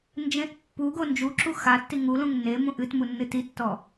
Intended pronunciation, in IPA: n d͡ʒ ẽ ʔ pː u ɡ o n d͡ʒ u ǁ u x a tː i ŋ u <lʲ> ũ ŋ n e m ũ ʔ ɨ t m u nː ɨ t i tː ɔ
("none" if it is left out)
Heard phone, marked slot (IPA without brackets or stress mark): l